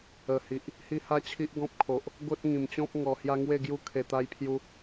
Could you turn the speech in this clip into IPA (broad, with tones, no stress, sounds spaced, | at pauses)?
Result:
ə˨˩ h i˨ ʔ | h i˦ h a˦ t͡ɕʰ i˦ ʔ ɡ ɔ̃˦ p̚ kʰ o˨ ʔ | ɡ o˦ t̚ ŋ ĩ˨˩ m t͡ɕ ɔ̃˦ p̚ ŋ ɔ˨˩ h j a˧ ŋ w e˥˧ ɡ j u˦ kʰ e˧ t̪ a˦ j pʰ j u˦